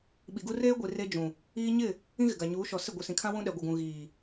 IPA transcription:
ɓ i˨ ɡ u˦ r eː˦ ɡʷ i˨ r e˦ d͡ʒ ũ˨ | iː˦ ɲ ɪ˦˨ | ĩ˦ ɣ ɪ˨ ɡ a˨ ɲ uː˨˦ ʃ ɔ˨ s ɪ˦˨ ɡʷ i˨ s ĩ˨ kʰ ã˦ w ũ˦ ɗ ɛ˨ ɡʷ ɪ˨ ɡ ũ˨ ɣ iː˨

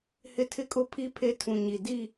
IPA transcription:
h ɪ˦ tʰ ɪ˦ kʼ ʊ˦ pʰ i˦ pʰ e˦ tʰ ũ˨ ɲ i˨ d i˦˨

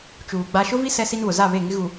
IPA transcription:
t͡ʃ uː˨ ɡ͡b a˦ ʃ ʊ˦ v i˦ s ɛ˦ s i˦ n β ʊ˨ z a˦˨ β e˦˨ ŋ ɪ˦ ɣ u˨

